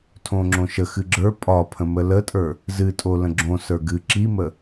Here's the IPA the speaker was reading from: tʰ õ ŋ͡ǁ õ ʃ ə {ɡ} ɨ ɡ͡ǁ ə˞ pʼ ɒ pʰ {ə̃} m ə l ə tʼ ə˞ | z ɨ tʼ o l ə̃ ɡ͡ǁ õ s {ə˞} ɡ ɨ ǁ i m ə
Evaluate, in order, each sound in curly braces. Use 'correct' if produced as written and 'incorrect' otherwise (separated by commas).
incorrect, correct, correct